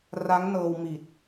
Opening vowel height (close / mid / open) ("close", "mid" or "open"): open